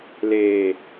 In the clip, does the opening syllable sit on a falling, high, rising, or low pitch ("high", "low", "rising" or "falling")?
low